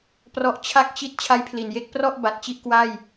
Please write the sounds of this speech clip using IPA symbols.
p r ɔ˦˥ ʔ t͡ɕʰ a˥˩ k̚ t͡ɕ i˥˩ t̚ t͡ɕʰ a˦˥ j pʰ l i˨˩ n j e˥˩ k̚ p r ɔ˥˩ ʔ b a˨˩ t̚ t͡ɕ i˥˩ ʔ k w a˥˩ j

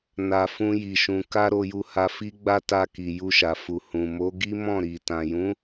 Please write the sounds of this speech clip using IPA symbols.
n a˧ f ũ˦ j i˧ ʃ ũ˧ k a˦ ɾ o˧ j u˧ h a˧ f i˦ ɡ͡b a˦ t a˧ k i˨ j u˧ ʃ a˨ f u˨ h ũ˨ m o˨˦ ɡ i˦ m ɔ̃˦˨ ɾ i˨ t ã˨ j ũ˨˦

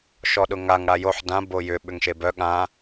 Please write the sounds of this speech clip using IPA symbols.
ʃ ɔ ɗ ʊ ŋ a ŋ ɽ a j o ħ d ã b o j ʏ ɓ ʏ ŋ ʃ e b œ ɠ ã

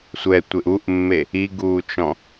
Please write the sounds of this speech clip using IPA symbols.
sʷ ɛ tʷ e ʔ u ʔ mː e | i ɡ uː t͡ʃ ɔ̃

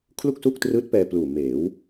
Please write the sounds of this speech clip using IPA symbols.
kʰ l u˥˩ k̚ s u˥˩ k̚ t r ɯː˦˥ t̚ p ɛː˧ p l uː˨˩ m eː˩˦ w

